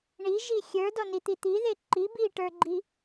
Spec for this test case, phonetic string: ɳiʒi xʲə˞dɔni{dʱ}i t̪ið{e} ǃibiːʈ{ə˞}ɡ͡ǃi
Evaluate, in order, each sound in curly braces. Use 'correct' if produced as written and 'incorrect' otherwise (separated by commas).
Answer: incorrect, correct, correct